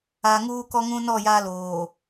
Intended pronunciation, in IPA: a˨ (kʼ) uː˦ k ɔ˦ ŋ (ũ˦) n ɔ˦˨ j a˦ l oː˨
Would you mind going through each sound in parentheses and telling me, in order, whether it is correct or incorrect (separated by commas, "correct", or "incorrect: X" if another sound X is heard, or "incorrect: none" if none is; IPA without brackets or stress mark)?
incorrect: ŋ, correct